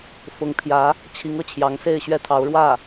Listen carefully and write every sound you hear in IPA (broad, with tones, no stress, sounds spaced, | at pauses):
f ʊ˧˥ ŋ pʰ j ä˧˥ | t͡ɕʰ i˧˥ ŋ ɤ˥˩ t͡ɕʰ j ɑ˧˥ ŋ s e˥˧ ɪ̯ ɕ ɥ ɛ˥˩ t̪ʰ ɑ˧˥ ʊ̯ ɻ w ä˥˩